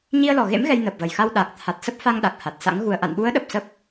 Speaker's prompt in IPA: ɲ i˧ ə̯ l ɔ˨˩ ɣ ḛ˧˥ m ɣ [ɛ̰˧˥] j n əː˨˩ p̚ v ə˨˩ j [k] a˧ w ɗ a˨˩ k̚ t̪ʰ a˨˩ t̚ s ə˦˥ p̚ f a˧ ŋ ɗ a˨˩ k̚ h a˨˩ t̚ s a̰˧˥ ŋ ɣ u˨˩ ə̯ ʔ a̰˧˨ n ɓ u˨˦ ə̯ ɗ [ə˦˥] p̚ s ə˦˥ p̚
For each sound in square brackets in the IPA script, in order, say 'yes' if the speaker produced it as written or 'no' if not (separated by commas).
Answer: no, no, no